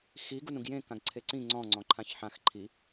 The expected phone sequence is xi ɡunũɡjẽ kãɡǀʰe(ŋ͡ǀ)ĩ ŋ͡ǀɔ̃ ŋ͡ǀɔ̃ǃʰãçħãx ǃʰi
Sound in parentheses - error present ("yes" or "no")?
yes